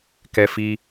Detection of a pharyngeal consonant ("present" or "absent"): absent